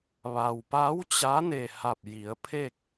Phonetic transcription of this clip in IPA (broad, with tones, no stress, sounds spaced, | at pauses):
ʋ a˩ w p a˧˥ w t͡ɕ a˧˥ n e˧˩ h a˧˩ p̚ j i˩˧ ə̯ pʰ e˥˨ k̚